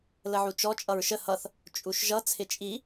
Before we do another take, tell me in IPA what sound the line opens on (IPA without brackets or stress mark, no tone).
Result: l